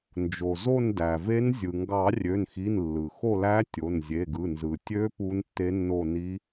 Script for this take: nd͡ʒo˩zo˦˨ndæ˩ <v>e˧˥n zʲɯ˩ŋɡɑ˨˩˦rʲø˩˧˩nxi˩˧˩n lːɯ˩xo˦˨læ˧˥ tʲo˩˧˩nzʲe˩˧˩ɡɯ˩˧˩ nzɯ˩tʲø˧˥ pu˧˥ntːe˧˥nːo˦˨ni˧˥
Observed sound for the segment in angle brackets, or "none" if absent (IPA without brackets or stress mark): v